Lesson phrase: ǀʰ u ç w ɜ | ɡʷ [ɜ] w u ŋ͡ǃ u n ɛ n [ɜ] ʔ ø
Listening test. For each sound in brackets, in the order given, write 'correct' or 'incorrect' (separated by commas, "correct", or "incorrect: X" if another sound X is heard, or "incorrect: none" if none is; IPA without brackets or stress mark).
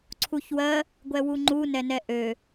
incorrect: ɛ, incorrect: ɛ